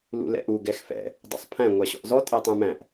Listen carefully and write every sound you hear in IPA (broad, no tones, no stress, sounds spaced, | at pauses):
l ṵ l ɛ̰ ʔ u ɡ ɛ x f ɛ̰ | dˤ ṵ sˤ pʰ æ̃ ŋʷ æ ɕ ɔ̰ ʔ z ɔ tʼ æ tˤ ũ m æ̃ ʔ